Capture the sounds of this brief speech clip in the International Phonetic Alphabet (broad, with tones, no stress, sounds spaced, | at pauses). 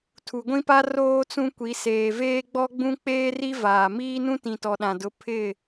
tʰ u˨ ɡʷ ĩ˦ p a˦ r oː˦ t͡s ũ˦ kʷ i˨˦ s eː˨ v eː˦ ɡ͡b ɔ˦ ɡ͡b ũ˦ k͡p eː˦ r i˦ v aː˨ m iː˦ n ũ˦ t ĩ˨ t ɔ˨ ɗ ã˨ d ʊ˨˦ pʰ ɪ˦˨